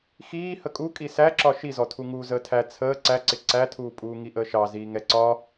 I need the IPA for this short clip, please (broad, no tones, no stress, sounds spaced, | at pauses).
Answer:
x iː h ə kʼ u kʼ i s æ ǁ ɒ ʃ i z ɔ tʰ u ŋ uː z əː tʰ æ t͡sʰ əː ǀ æ ǀ ɪ ǀ æ tʰ uː pʼ uː ŋ i ʔ əː ʃ ɑ z iː ŋ ɛ ǀ ɒ